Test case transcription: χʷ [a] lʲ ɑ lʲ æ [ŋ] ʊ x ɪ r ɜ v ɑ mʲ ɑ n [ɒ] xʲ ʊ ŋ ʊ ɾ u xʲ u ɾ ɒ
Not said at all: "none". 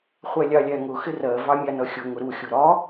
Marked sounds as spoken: æ, ŋ, ʌ

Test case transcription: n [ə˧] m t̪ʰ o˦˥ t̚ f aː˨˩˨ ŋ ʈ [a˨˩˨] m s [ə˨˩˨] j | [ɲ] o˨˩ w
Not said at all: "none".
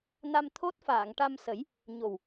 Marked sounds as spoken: a˧, a˧, ə˨˩˦, ɲ

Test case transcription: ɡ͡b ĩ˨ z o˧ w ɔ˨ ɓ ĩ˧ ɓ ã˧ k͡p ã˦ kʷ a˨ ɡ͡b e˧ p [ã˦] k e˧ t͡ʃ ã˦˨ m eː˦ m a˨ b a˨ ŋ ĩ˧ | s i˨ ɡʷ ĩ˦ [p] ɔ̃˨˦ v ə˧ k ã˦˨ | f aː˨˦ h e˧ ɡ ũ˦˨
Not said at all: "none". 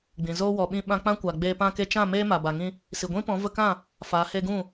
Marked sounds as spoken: ã˧, p

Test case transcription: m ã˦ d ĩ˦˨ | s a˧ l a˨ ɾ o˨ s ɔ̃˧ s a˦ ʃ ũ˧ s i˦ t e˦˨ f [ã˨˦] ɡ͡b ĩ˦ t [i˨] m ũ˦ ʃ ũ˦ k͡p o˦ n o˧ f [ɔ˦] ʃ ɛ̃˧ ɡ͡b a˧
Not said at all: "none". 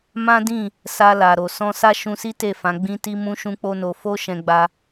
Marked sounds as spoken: ã˨˦, i˦, o˦

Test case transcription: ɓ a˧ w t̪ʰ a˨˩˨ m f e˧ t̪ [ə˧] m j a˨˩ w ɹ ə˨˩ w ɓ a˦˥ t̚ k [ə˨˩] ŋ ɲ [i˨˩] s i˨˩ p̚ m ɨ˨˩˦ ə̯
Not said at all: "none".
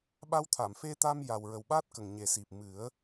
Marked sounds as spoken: a˧, ə˨˩, e˨˩

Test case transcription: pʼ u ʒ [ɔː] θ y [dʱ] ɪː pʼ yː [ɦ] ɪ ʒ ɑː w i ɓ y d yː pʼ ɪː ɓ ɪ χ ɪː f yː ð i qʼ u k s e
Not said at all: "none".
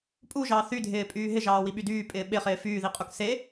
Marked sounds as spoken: ɑː, dʱ, ɦ

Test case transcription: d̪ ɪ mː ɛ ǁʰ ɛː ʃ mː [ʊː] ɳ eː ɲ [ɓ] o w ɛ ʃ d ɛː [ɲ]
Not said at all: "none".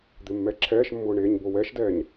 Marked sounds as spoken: ʊː, b, ɲ

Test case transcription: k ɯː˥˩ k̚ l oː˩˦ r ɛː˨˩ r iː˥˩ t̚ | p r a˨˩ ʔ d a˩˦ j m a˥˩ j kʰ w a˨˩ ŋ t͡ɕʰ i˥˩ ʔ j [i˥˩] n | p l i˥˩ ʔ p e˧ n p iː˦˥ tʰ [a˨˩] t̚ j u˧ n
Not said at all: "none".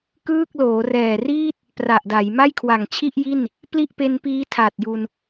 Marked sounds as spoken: i˥˩, a˨˩

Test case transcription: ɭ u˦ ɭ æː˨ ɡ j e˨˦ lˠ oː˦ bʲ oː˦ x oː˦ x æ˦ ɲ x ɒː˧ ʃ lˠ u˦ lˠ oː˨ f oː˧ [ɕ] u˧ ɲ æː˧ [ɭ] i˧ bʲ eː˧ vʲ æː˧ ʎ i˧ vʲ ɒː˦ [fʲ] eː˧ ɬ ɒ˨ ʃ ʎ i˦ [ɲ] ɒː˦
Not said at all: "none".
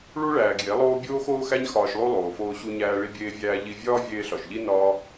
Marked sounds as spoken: ɕ, ɭ, vʲ, n

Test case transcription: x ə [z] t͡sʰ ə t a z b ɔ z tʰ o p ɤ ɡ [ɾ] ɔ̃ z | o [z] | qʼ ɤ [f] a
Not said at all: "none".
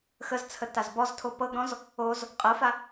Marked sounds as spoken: z, ɾ, z, f

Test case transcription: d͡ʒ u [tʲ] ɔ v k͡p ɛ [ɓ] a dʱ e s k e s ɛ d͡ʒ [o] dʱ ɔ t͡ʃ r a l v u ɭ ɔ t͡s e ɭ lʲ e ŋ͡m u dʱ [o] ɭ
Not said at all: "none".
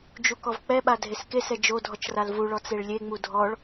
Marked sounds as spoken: k, ɓ, o, ɔ

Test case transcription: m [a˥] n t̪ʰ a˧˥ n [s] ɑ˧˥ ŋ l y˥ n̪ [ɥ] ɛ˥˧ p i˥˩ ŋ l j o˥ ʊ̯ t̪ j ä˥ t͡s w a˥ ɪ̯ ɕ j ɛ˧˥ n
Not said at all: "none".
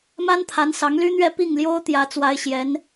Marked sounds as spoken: a˥, s, ɥ

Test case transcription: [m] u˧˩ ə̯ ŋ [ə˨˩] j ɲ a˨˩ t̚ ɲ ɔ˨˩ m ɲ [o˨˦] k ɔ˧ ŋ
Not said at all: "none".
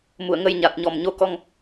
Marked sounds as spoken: m, ə˧, o˨˦

